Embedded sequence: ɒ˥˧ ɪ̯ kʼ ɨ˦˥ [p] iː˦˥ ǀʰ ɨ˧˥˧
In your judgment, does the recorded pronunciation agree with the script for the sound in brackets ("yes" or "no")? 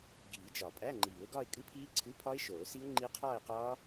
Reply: no